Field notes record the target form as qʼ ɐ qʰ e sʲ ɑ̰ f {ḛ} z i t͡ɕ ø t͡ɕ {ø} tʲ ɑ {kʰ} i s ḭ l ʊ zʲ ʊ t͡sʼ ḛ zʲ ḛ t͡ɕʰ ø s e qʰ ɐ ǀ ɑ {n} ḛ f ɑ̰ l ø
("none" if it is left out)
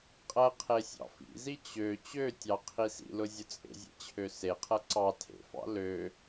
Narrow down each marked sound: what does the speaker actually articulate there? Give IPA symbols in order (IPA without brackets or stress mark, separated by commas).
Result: ḭ, ø, qʰ, tʰ